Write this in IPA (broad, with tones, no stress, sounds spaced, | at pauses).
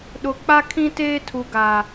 ɗ ʊ˨ k͡p a˦ kʰ ĩ˦ t eː˦ tʰ u˨ ɡ a˨